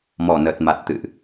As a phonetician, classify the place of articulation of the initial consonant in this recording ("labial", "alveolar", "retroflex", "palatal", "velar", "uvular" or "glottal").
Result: labial